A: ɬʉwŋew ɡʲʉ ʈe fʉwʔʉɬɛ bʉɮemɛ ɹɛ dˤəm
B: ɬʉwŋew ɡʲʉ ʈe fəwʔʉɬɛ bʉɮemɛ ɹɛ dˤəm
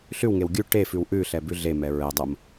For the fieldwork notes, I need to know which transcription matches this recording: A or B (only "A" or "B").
A